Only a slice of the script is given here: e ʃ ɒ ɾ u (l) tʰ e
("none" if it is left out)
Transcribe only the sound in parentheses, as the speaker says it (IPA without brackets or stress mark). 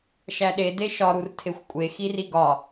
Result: r